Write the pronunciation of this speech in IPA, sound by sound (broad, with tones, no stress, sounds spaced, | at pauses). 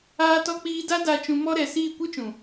aː˧ t ɔ˧ k͡p iː˧ d a˦ d a˧ t͡ʃ ũ˧ m ɔ˦ ɾ ɛ˨ s iː˦˨ kʷ ɨ˦ t͡ʃ ũ˨